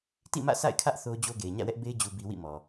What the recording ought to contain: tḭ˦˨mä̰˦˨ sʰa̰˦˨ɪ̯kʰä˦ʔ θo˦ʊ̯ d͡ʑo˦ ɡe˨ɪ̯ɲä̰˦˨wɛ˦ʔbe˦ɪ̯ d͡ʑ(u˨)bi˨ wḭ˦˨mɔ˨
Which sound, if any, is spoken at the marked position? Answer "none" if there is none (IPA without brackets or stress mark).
u˨